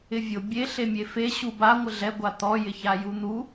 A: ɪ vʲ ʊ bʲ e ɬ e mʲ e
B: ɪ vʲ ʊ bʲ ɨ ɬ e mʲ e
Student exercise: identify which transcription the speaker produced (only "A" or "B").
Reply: A